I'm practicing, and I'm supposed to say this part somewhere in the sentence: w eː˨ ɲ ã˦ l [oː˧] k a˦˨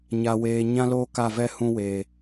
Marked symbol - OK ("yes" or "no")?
no